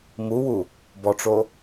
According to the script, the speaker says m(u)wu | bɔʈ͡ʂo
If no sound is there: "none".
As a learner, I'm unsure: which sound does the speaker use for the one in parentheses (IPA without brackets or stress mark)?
u